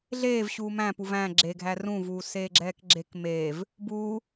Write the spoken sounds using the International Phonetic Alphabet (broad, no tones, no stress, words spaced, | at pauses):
ɮeːvɕuː mæ̃puv æ̃ ɡ͡ǁeɡʱæ rũvuːseːɡ͡ǁɛːk ɡ͡ǁek meːv | buː